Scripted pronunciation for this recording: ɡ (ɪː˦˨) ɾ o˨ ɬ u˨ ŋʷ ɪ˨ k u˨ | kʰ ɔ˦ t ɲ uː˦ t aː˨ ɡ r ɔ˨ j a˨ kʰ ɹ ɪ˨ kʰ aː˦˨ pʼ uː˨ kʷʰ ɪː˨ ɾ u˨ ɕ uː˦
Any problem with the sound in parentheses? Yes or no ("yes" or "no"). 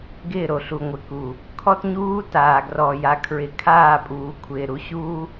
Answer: no